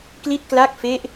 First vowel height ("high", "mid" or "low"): high